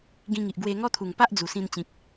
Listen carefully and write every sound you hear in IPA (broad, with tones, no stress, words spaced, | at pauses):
ɡĩ˧ŋi˨ʔ ɡwe˧ ŋɔ˦t̪ʰu˨˩ŋ pa˦ʔd͡zu˨˩sĩ˧n t͡ɕĩ˨k̚